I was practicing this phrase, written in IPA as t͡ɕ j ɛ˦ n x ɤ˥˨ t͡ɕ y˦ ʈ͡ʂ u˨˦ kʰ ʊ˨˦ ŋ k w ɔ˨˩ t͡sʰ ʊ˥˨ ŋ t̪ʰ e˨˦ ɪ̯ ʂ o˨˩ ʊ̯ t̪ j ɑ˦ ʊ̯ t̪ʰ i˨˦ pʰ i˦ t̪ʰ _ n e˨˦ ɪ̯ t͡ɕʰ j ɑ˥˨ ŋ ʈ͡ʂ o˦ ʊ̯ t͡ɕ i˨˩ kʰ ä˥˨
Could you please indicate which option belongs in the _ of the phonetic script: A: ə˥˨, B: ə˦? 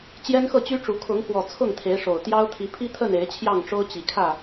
A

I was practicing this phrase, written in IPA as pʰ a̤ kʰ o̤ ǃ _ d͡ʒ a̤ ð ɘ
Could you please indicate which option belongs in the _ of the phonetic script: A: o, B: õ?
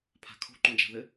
B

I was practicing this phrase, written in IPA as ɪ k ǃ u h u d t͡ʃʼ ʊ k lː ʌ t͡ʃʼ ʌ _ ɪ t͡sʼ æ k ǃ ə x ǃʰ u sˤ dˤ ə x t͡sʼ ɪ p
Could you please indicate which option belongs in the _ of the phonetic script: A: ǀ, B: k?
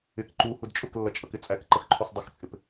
B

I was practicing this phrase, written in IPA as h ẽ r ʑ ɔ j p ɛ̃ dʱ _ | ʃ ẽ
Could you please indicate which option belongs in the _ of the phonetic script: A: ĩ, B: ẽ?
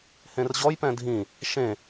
A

